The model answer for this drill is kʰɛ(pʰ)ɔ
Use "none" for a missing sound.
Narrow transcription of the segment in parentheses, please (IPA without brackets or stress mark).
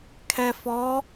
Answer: f